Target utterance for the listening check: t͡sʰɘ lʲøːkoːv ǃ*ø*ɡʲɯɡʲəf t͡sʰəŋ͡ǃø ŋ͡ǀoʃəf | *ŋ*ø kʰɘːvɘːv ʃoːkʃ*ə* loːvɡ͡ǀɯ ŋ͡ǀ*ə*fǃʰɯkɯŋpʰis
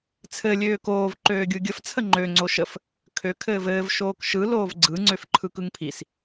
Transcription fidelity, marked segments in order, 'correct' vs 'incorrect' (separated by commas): incorrect, incorrect, incorrect, incorrect